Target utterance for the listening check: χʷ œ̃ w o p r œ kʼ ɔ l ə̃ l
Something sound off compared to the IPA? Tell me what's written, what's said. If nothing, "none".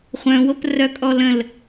none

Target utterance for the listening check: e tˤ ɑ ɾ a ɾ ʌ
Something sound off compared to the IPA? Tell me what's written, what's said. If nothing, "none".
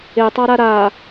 ʌ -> a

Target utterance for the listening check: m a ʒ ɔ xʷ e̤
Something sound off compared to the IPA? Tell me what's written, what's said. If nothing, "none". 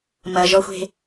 a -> ɐ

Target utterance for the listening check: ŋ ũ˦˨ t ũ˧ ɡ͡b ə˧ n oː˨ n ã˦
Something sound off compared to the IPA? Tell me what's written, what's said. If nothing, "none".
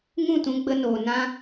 none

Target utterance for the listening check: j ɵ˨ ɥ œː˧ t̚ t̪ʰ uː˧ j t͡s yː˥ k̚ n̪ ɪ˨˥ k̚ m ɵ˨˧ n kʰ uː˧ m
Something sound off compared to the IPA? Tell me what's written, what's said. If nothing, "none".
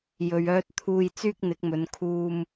none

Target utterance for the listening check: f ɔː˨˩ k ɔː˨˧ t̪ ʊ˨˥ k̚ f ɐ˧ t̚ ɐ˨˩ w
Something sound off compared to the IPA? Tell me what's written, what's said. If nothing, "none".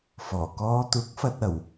none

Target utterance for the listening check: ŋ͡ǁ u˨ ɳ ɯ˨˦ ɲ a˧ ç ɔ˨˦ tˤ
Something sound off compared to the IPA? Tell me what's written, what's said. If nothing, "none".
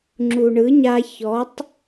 none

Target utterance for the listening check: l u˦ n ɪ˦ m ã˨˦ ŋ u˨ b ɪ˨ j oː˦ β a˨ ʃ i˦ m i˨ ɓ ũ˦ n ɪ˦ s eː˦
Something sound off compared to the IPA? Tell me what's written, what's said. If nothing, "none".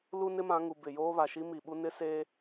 ũ˦ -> u˦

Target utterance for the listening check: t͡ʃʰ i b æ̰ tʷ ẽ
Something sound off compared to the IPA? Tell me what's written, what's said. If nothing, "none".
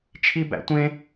none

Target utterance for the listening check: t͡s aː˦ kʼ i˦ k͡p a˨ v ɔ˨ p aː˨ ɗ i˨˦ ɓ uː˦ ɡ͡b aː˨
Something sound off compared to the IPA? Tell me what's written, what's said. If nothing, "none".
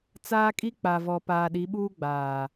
none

